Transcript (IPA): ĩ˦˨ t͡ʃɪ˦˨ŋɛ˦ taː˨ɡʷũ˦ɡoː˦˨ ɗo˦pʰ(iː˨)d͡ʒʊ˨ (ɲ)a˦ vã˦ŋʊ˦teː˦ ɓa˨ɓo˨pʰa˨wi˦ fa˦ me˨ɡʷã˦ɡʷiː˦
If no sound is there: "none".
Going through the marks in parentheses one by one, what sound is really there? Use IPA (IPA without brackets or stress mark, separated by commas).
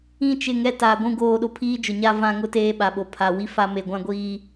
iː˦, ɲ